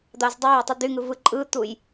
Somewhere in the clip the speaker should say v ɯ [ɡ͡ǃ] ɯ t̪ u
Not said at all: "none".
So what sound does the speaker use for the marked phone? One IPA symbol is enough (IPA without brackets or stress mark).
ǃʼ